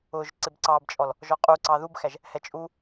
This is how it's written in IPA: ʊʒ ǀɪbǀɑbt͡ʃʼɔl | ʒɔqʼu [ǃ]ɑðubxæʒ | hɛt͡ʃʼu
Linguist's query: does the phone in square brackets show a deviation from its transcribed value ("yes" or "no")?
yes